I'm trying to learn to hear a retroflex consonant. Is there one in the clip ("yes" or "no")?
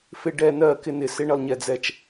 yes